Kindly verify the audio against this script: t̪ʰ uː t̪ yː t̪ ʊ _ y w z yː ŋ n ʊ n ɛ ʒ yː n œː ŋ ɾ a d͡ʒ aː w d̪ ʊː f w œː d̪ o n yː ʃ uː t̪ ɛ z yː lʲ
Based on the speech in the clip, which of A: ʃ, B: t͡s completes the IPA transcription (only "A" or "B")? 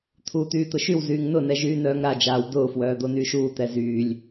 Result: A